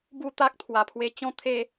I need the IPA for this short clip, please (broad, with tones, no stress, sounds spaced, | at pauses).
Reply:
b u˥˧ t̪ a˦ k̚ t̪ʰ w a˨˩ pʰ w e˧ t͡ɕ ɔ̃˧ t̪ʰ e˧